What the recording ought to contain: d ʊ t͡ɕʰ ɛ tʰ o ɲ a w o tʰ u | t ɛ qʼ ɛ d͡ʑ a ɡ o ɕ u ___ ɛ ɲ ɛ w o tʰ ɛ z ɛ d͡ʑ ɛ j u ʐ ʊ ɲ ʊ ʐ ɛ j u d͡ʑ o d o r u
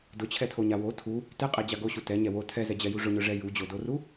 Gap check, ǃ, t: t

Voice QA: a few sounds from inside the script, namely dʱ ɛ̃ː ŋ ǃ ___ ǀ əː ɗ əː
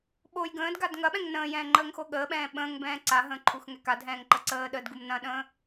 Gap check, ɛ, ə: ə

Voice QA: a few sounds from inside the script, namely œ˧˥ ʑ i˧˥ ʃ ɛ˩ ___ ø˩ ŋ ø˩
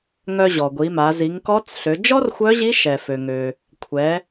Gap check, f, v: f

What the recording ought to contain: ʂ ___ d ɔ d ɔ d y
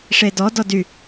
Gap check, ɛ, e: e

